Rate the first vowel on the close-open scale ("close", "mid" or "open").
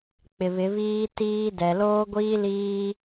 close